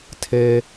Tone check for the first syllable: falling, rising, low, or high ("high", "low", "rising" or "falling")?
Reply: low